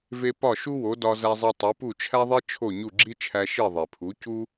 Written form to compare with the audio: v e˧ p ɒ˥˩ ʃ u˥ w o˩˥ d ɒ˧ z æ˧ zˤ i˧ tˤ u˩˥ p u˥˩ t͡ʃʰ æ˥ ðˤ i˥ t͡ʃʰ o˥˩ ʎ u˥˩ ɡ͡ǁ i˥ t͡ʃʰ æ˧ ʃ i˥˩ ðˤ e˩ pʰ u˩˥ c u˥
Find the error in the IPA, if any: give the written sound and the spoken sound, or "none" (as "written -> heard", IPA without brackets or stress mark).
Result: ʎ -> ɲ